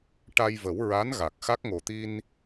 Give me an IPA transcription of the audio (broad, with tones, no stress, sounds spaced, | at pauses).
ʈ a˧ j v ə˨˩˦ w ɹ a˧˥ n ɣ a˨˩ k̚ x a˦˥ k̚ ŋ o˨˩ t̪ i˧ n